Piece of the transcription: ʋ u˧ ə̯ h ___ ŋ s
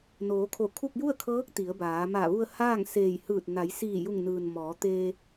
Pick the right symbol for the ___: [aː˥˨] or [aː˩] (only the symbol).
aː˥˨